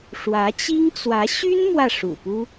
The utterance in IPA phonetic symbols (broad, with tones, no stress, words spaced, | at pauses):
ʂwä˧˥t͡ɕi˥ŋt͡swä˧˥ ɕy˥n mwä˥˩ʂṵ˨˩pu˥